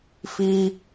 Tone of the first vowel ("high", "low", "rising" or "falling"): high